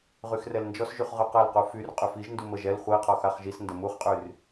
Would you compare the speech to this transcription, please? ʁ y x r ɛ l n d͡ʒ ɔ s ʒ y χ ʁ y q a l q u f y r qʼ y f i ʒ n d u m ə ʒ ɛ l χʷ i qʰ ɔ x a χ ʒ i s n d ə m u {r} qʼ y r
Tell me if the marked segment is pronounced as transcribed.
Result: no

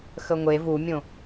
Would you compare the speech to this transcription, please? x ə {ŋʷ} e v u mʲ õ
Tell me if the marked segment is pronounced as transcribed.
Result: yes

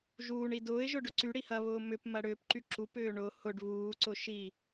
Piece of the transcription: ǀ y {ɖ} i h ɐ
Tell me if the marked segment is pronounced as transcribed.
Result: no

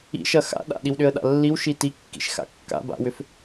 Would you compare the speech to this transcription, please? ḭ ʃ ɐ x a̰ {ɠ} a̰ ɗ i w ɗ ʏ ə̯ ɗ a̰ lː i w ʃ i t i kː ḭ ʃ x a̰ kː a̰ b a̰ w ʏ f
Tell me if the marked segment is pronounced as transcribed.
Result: no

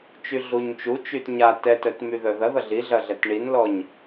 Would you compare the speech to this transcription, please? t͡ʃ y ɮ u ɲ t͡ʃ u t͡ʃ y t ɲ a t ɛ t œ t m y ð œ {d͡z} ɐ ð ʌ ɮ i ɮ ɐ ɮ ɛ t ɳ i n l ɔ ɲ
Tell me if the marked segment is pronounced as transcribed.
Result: no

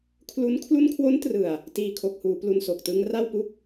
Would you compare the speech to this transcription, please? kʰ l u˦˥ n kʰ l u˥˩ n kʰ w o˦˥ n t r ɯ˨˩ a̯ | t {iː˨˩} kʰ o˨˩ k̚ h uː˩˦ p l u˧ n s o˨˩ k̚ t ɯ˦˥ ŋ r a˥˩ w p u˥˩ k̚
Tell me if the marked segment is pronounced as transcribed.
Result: yes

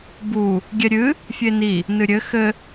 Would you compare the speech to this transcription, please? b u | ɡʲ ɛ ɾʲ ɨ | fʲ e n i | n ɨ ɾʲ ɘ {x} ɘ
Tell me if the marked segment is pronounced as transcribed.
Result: yes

